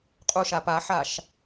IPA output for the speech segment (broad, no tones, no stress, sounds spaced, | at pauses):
qʼ u ʃ a p a ħ a ʃ